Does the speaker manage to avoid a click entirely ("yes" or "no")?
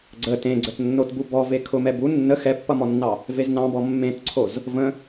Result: no